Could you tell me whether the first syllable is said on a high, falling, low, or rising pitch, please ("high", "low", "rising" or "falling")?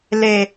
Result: low